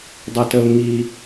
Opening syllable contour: low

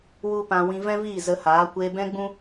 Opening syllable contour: high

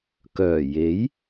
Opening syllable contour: low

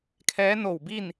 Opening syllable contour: rising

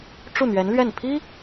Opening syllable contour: falling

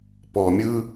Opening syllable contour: low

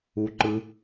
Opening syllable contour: low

